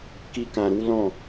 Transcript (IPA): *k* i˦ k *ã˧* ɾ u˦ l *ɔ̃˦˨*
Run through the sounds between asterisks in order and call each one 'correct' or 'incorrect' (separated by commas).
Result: correct, correct, correct